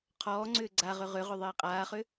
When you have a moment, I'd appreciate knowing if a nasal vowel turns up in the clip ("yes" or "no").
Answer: no